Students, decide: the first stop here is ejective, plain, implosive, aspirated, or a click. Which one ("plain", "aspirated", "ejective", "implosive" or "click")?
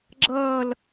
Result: click